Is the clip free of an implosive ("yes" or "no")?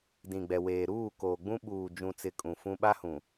no